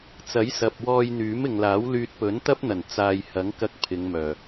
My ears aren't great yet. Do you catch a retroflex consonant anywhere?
no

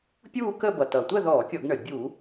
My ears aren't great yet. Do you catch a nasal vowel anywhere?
no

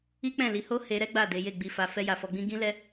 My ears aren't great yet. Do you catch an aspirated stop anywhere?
no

